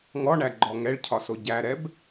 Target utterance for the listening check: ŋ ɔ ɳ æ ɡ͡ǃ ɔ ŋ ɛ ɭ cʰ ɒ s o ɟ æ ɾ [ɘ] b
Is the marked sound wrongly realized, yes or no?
yes